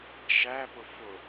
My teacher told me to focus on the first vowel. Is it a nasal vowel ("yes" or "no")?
no